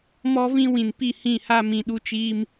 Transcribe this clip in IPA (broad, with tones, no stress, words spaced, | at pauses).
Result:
mɔ˦vĩ˦wĩ˨npi˦˨ hĩ˦˨ha˦ mĩ˨ɗu˦t͡ʃiː˦m